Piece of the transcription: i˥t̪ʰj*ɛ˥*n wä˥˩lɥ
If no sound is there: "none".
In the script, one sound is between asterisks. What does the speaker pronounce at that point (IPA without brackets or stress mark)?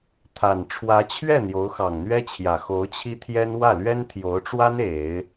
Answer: ɛ˥